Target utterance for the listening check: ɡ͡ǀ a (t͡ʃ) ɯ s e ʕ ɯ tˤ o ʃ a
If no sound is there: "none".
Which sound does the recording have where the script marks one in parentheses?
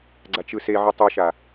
t͡ʃ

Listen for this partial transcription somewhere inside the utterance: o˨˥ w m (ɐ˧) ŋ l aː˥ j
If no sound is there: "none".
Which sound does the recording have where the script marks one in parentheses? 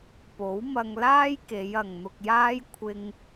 ɐ˧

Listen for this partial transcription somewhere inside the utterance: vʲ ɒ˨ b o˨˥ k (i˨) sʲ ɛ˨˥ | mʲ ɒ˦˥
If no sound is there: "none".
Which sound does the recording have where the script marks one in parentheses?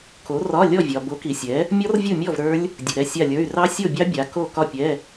i˨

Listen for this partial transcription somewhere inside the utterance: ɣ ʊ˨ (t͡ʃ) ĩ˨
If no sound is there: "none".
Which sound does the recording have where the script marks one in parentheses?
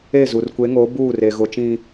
t͡ʃ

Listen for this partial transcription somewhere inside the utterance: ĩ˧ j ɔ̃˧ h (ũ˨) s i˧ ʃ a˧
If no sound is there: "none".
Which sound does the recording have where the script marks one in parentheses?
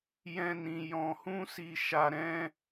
ũ˦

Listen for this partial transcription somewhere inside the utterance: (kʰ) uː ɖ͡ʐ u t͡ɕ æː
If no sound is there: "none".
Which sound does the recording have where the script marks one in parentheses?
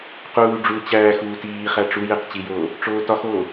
q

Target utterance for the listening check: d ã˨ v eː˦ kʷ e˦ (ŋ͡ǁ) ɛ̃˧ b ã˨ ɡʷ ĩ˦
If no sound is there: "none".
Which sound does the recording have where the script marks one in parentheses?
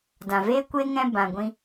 ŋ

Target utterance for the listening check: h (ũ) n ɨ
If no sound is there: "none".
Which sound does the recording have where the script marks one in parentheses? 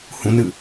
ũ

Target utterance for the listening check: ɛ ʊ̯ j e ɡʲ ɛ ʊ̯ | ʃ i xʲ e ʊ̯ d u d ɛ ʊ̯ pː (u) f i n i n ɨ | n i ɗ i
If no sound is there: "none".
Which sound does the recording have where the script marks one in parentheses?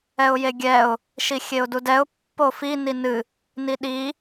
o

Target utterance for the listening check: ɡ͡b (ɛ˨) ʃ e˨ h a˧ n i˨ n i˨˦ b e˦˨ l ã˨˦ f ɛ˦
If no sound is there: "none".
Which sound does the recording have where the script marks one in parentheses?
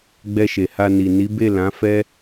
ɛ˧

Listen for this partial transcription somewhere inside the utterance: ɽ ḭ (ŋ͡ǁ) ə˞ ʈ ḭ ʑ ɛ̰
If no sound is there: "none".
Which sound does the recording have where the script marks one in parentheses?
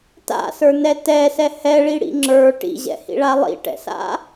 ŋ͡ǁ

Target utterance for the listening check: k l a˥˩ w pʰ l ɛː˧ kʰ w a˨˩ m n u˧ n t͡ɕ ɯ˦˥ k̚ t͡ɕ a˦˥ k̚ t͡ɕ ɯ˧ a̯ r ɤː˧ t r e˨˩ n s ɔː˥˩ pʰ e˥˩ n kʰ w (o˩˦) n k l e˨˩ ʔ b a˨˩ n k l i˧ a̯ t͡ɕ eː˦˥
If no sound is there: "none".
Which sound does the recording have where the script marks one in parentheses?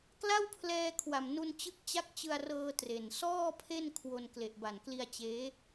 o˧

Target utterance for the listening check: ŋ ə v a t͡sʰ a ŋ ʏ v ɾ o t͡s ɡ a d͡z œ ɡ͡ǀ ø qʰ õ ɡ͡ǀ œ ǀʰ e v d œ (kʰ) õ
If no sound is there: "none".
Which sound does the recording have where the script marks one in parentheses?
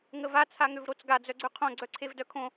kʰ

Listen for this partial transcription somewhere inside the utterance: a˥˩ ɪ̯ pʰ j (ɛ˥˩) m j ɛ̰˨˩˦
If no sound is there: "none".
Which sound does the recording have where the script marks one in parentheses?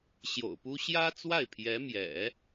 ɛ˧˥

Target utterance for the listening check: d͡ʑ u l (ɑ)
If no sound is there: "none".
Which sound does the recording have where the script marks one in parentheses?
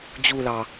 ɑ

